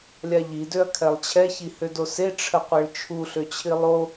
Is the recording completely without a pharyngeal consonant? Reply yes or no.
yes